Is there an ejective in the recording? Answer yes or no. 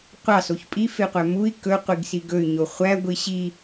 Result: yes